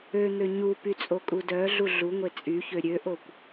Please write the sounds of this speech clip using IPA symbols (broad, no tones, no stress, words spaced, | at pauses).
øn̪ø ɲupy t͡sʼokʼudœɮu ɮuŋʷe t͡sʼyçø ɾʲøʔokʷ